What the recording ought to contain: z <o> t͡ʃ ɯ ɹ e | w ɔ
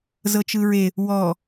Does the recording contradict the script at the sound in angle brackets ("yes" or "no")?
yes